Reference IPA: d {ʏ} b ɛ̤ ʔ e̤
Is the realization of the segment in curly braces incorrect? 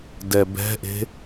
yes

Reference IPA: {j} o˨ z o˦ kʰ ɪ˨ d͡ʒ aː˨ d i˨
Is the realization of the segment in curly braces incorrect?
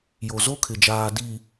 no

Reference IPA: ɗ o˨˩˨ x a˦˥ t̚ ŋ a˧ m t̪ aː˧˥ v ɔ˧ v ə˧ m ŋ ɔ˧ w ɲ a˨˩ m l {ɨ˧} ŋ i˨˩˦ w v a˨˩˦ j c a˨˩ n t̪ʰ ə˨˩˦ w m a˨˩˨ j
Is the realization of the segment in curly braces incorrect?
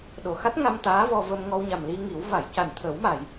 yes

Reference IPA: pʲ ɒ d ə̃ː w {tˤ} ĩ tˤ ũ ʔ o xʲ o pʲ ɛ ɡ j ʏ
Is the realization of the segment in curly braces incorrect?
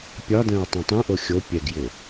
no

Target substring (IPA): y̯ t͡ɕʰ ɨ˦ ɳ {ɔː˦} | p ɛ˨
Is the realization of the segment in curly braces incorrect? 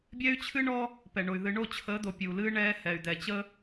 no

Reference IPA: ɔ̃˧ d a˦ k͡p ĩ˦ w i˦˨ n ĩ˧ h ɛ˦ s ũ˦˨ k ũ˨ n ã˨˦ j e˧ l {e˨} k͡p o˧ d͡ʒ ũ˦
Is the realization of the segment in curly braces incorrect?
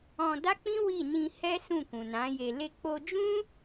yes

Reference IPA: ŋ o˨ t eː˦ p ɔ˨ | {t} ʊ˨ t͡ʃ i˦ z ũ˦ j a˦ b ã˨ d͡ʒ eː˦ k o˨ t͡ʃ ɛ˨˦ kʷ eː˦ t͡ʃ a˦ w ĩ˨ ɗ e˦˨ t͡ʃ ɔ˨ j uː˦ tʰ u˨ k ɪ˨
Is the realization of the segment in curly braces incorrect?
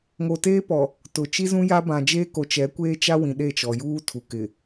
no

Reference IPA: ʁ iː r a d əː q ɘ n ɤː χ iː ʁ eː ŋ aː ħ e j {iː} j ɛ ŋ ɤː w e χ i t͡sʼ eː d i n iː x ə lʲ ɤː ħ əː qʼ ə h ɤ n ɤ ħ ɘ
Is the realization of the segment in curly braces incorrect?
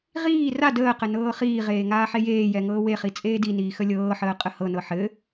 yes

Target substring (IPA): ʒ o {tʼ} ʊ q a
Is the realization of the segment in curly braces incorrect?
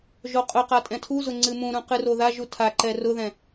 yes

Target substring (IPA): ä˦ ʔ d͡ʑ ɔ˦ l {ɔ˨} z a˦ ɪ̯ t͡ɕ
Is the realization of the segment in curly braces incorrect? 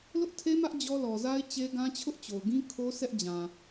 no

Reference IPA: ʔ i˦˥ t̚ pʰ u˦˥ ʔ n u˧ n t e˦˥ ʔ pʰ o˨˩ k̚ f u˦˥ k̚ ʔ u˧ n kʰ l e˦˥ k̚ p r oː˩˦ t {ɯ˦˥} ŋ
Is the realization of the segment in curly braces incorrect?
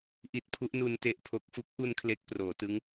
no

